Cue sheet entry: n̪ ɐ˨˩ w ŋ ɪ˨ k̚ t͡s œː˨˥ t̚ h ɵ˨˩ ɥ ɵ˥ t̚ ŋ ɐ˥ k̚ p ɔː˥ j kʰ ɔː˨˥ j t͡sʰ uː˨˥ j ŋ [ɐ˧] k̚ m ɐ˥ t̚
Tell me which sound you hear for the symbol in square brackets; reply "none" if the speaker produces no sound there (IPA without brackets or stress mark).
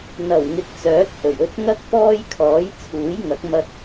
ɐ˨˥